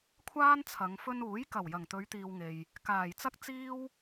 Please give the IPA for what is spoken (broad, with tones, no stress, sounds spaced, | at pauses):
kʷʰ aː˥ n t͡sʰ ɐ˨˧ ŋ f ɵ˧ n uː˨˥ j k ɐ˨˩ w j ɐ˨˩ ŋ t̪ ɵ˨˧ ɥ t̪ iː˨ w ŋ e˨ j | k aː˨˩ j t͡s ɐ˥ k̚ t͡s iː˥ w